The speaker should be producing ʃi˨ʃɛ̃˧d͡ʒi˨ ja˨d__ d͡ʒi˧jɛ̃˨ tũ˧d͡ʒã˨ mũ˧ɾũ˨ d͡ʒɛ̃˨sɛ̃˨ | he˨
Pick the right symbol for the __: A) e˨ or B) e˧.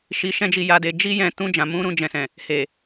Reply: A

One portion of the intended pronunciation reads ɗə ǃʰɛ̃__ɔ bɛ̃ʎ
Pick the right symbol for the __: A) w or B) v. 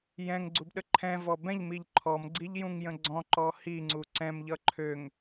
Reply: B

